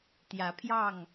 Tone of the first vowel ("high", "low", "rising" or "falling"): rising